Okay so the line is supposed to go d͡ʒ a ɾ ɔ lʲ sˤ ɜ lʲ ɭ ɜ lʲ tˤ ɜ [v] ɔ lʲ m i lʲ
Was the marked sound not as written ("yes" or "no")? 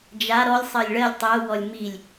yes